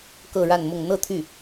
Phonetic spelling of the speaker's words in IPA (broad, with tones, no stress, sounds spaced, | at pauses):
k ɤ˥˧ ɻ a˥˧ n m ʊ˥˧ ŋ n̪ ɤ˥˧ t̪ʰ y˥˩